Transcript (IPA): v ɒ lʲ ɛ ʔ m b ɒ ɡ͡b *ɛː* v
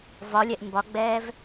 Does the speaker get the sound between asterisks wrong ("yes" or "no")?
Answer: no